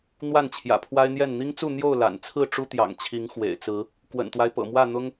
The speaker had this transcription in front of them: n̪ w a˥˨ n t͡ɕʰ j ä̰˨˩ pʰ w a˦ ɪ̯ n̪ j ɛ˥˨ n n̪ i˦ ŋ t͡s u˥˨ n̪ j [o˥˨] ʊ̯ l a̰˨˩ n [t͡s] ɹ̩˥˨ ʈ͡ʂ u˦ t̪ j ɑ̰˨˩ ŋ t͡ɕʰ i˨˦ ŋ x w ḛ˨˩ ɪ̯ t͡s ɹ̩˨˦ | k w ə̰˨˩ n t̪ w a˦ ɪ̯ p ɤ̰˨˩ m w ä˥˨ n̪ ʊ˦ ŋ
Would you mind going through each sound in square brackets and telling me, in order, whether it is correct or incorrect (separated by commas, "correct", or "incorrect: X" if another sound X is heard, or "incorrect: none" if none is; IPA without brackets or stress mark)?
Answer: correct, incorrect: t͡sʰ